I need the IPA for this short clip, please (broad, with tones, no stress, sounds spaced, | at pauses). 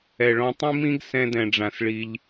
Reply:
ɛ˨ ɭ ɔ̃˧ tˤ ĩ˦ m ĩ˦ ɡ s ɛ̃˧ d ɛ̃˨ ɖ͡ʐ ã˨ s ɭ i˧ ʎ